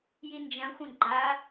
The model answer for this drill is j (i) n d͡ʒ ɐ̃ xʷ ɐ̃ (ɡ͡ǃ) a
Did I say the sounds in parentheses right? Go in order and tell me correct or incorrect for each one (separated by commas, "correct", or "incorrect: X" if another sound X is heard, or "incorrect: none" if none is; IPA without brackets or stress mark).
correct, correct